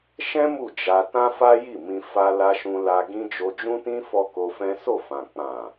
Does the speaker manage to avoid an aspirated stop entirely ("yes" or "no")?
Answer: yes